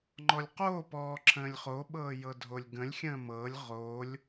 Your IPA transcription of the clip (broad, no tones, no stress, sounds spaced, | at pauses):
ŋ͡ǃ ɔ lʲ q oː p ɔː ǁʰ ə̃ː lʲ χ o ɓ ɤː j ɤ dʱ o lʲ ɡ ə̃ lʲ xʲ ə̃ː m ɤ lʲ ʁ o lʲ